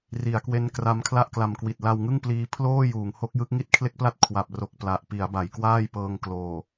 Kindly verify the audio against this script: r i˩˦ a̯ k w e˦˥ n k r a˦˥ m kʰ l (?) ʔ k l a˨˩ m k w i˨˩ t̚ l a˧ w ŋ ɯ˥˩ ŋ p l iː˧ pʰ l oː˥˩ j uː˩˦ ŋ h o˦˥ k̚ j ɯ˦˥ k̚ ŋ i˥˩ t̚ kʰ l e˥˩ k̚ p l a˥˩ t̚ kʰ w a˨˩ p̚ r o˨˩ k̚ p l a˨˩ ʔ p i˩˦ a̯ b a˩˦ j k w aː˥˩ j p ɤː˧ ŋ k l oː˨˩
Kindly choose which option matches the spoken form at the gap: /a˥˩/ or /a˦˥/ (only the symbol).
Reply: a˥˩